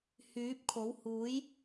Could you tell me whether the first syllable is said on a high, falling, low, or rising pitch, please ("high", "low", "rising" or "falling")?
rising